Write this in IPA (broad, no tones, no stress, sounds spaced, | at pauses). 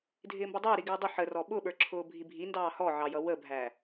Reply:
dʱ ɪː m b ʌ dˤ ɪː ɾ i ɡ ɪː dˤ ʊ ħ ə r ɔ ɓ ʊ ɓ ə˞ ǁʰ ʊː bʱ i bʱ i n d ɑː h ɔ ʕ ɑ j ʌ w ə bʱ æ